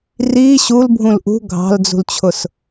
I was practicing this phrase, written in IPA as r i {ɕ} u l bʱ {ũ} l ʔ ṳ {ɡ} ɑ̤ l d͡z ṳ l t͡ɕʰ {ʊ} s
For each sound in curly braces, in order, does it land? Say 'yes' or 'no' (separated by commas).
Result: yes, yes, no, yes